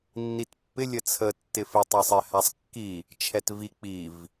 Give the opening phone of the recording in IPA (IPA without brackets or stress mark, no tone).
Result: nː